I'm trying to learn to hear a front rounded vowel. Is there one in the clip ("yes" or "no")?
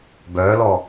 yes